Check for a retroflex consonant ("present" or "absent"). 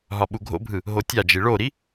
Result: present